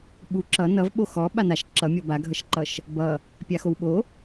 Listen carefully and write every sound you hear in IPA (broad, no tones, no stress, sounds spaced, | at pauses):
ɓ u ǁ ʌ n ʌ v ɓ o x ɔ ɓ a n a ʃ ǁ ʌ mʲ ɔ b a ɡʱ ʌ ʃ ǃ ʌ ʃ | b ʌ | pʲ a x o w ɓ o